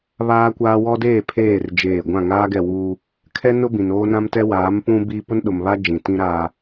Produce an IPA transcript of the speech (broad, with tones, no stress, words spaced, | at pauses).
βaː˦kʷaː˦ wɔ˦deː˦˨pʰeː˦˨r d͡ʒeː˦˨ ɡʷã˦˨ŋaː˦ɡɛ˦˨wuː˦ | kʰɛ˦ nʊ˦ bĩ˨n oː˦nã˦mtɛ˦ waː˨˦m pũ˦ biː˦ pʊ˦nɗʊ˨mβa˦ d͡ʒĩ˨tĩ˦ɾaː˦